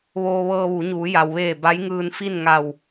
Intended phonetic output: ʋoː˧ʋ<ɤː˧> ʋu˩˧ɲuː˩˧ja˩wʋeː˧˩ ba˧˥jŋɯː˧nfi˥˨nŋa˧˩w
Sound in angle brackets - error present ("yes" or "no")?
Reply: no